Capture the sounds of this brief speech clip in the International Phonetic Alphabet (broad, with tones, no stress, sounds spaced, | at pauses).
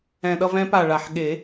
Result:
ɛ̃˨˩ ɗ ʌ˥˧ v ɛ̃˧˥ p a˨˩ ɭ a˨˩ ħ ɠ e˨˩˦